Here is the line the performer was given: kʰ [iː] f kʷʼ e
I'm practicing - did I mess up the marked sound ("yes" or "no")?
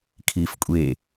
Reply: no